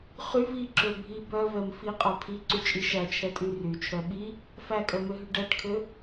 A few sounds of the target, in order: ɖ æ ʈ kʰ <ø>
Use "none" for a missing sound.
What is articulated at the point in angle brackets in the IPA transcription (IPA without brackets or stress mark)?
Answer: ø